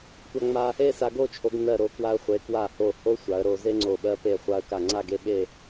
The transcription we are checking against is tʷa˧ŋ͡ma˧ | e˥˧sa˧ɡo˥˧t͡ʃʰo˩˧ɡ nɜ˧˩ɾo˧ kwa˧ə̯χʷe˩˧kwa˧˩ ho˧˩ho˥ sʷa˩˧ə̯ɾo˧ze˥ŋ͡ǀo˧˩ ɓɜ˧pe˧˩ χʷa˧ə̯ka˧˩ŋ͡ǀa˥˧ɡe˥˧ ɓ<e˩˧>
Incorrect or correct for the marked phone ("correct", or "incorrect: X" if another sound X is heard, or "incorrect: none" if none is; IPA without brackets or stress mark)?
incorrect: e˥˧